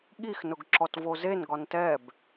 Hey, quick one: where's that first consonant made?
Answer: velum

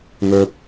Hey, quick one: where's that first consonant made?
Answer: velum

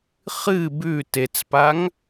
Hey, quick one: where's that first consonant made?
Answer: uvula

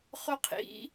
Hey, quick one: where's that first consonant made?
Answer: uvula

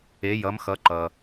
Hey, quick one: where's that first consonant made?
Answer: palate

